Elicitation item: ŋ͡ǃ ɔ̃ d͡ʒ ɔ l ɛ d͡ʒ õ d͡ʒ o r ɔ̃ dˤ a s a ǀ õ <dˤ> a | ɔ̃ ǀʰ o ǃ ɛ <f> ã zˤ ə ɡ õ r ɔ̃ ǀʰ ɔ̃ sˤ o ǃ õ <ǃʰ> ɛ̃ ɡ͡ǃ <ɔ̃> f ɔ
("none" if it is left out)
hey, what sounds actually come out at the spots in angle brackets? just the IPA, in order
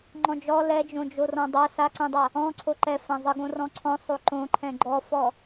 dˤ, f, ǃʰ, ɔ

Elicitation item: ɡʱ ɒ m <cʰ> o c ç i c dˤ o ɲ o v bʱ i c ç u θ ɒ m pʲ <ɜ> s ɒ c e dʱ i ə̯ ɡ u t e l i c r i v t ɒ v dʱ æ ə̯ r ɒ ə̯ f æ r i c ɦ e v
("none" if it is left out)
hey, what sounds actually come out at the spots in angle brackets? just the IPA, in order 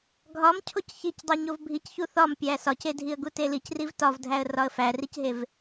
cʰ, æ

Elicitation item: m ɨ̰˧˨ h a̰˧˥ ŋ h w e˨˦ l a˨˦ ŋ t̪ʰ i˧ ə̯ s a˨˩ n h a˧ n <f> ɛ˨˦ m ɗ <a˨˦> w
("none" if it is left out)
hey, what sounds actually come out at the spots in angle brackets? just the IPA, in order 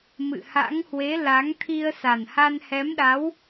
h, a˨˦

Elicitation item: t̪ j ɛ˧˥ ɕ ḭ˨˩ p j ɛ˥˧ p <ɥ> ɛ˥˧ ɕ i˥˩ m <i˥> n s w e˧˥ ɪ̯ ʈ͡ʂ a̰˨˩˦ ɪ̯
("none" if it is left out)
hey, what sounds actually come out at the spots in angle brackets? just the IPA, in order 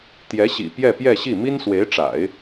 j, i˥

